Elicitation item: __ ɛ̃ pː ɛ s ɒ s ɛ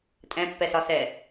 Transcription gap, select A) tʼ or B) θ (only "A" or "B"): A